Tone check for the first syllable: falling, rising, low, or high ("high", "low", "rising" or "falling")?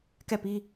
falling